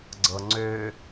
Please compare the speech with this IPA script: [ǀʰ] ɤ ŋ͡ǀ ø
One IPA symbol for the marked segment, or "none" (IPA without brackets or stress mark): ɡ͡ǀ